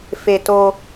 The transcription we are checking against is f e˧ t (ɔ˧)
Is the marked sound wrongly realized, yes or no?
yes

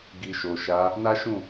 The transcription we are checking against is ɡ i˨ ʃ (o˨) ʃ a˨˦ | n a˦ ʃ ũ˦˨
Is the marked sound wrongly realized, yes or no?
no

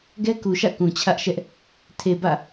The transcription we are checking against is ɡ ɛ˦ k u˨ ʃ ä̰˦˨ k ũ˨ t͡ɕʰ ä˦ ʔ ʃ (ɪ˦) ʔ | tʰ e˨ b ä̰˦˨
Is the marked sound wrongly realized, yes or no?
yes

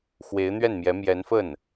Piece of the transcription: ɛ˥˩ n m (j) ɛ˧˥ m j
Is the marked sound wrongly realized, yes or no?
no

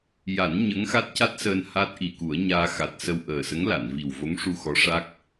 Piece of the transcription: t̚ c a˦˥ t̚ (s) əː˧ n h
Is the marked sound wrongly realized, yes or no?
no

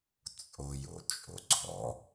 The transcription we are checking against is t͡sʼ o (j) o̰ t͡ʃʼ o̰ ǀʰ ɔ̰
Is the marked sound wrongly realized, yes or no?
no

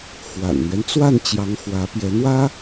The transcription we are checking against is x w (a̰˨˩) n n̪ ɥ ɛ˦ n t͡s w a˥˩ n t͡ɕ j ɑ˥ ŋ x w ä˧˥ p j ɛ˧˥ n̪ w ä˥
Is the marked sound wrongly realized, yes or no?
no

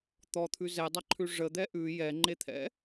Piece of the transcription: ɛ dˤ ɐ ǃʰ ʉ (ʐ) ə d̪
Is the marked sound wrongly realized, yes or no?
no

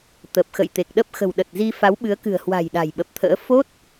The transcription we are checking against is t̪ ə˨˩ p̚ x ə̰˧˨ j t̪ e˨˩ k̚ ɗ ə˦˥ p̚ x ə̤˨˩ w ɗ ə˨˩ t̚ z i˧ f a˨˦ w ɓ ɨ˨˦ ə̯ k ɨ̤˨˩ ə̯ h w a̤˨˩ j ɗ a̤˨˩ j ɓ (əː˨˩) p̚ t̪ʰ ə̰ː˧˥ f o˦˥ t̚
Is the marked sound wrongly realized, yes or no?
yes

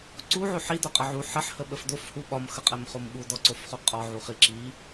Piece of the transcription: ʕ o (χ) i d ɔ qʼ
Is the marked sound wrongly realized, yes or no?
yes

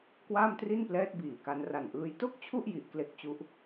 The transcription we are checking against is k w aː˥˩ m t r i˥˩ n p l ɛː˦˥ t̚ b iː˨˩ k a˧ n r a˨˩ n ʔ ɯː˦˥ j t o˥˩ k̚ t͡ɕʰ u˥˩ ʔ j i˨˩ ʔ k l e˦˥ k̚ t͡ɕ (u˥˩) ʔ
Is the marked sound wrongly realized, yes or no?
yes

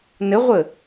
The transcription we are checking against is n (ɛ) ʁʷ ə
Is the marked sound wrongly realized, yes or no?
yes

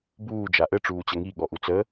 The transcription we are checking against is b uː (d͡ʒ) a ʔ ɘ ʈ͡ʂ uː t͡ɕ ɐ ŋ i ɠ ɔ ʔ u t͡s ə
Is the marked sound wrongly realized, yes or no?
no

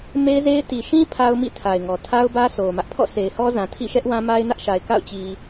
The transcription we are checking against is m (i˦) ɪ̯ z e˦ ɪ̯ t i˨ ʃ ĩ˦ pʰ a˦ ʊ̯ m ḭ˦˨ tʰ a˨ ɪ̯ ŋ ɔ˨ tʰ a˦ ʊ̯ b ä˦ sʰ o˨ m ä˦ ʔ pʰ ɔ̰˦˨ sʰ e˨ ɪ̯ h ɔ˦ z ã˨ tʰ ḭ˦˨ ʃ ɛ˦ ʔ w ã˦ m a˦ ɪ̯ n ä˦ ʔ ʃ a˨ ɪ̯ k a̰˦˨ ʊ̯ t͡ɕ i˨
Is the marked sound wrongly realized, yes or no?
yes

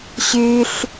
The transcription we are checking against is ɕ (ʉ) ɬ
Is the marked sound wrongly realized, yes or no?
no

